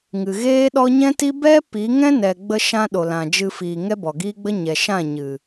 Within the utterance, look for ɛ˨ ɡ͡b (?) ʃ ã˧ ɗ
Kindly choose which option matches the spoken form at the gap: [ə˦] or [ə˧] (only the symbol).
ə˧